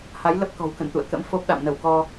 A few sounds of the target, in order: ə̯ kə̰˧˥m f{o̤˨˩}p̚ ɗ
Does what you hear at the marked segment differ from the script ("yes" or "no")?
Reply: yes